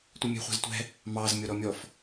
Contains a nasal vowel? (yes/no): no